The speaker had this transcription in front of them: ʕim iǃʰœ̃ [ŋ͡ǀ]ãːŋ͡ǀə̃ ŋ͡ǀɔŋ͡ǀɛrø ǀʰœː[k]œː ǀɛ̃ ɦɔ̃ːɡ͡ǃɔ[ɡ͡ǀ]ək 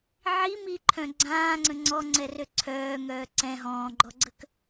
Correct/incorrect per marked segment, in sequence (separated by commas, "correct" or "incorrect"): incorrect, incorrect, correct